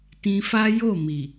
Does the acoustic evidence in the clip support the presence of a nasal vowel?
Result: yes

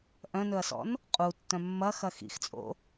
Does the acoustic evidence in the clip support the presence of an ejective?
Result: yes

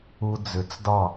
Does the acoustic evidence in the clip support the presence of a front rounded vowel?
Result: yes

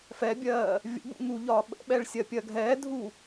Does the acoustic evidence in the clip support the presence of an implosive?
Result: yes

